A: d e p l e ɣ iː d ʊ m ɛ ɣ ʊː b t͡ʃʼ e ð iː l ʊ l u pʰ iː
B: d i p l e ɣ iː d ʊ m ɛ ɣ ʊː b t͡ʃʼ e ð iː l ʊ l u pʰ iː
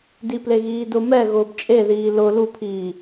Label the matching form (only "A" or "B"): B